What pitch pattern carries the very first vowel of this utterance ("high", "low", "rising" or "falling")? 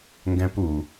high